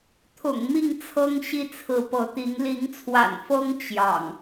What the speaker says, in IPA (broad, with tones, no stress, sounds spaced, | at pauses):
t̪ʰ ʊ̰˨˩ ŋ m i˥˨ ŋ t͡sʰ ɤ˦ ŋ ɕ i˦ t͡sʰ ɹ̩˨˦ p ɤ˨˦ t̪ i˨˦ ŋ l i˨˦ ŋ t͡sʰ w a̰˨˩ n f ɤ˦ ŋ t͡ɕ j ɑ̰˨˩ ŋ